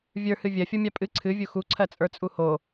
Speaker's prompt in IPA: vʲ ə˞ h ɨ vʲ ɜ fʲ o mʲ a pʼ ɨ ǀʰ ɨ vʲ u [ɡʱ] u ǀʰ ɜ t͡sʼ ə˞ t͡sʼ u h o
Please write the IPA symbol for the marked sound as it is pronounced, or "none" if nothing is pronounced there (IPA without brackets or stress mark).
x